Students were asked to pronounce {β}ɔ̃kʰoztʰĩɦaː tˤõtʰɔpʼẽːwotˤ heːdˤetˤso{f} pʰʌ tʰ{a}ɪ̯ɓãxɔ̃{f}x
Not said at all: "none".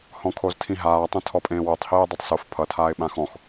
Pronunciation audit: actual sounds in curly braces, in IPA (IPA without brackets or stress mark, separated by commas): h, f, aː, none